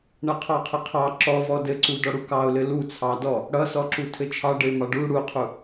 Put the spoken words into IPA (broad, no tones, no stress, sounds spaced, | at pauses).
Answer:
ɳ ʌ qʰ ɑ qʰ ɘ qʰ ɑ ǁ ɔ v ɔ d ɘ ǀ u d ɔ ɽ u k ɑ ʊ̯ l ɘ l u t͡sʰ ɑ d ɔ | ɽ ʌ s ɔ ǁ u tʰ ɘ t͡ʃʰ ɑ ɖ ɘ ɪ̯ m ɑ ɖ u ɽ u qʰ u